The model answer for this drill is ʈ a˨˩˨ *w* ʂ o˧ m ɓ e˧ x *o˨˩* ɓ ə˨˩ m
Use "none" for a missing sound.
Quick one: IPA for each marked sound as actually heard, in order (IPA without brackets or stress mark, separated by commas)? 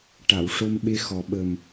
w, ɔ˨˩